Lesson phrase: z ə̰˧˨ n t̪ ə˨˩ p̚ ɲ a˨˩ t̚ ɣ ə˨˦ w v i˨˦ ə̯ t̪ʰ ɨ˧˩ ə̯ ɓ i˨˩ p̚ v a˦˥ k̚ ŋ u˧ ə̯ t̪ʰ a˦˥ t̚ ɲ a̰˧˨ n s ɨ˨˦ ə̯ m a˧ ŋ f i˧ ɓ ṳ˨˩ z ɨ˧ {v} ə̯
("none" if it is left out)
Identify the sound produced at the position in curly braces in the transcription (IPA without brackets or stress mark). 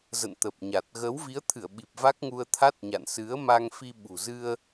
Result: none